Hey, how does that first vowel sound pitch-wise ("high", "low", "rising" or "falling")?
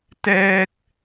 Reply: high